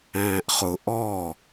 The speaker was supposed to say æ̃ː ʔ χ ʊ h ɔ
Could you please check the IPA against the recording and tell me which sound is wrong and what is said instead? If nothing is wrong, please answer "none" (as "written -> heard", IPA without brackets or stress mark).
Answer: h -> ʔ